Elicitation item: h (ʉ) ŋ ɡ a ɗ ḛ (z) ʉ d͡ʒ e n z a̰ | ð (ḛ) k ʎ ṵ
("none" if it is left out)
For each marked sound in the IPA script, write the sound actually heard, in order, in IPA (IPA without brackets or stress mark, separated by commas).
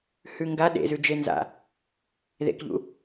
ʉ, z, ḛ